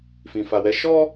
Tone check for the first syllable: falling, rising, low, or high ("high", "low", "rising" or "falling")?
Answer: low